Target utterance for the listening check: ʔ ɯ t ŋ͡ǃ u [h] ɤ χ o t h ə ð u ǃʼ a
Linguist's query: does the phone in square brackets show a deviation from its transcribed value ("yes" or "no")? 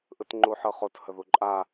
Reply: yes